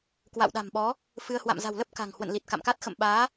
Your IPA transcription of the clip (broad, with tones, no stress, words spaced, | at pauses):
kwa̰˧˨wɗa̤˨˩mɓɔ˨˦ | fɨ˧ə̯ hwa̰˧˨mza̤˨˩wlə˦˥p̚ ka̤˨˩ŋ hwə̰˧˨nli˨˩t̚ka̰˧˨mka˦˥t̚ xə̰˧˨mɓaː˨˦